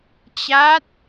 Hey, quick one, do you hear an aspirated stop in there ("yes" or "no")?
no